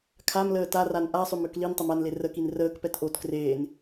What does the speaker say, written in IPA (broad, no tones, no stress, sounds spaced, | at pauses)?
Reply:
kʰ a m l əː t a r a n ʔ a sˤ ʏ m ø k l i n tˤ ə m a n l e r ə k i n r əː k p ɛ t ʔ o t k r eː n